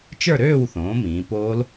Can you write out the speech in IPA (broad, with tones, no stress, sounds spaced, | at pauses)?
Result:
t͡ʃ ə˞˥˨ ɾ øː˥˨ w θ õː˩˥ m ĩː˩˧ p oː˦˥ l